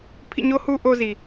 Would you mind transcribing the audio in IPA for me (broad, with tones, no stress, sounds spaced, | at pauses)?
pʰ ḭ˦˨ ɲ o˦ h u˦ ʔ o˦ z i˨